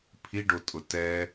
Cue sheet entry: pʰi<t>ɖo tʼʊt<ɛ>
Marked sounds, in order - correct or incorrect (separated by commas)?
incorrect, correct